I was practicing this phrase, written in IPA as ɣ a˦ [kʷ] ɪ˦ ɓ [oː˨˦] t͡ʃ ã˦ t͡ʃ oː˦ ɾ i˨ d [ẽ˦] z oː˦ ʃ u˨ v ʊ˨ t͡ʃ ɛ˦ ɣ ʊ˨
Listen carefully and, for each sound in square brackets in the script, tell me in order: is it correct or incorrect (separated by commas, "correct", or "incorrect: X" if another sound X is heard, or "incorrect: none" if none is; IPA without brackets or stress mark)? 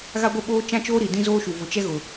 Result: incorrect: ɡʷ, incorrect: oː˦, incorrect: ĩ˦